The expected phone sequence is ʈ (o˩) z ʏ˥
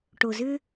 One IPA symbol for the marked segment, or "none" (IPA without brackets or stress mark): o˩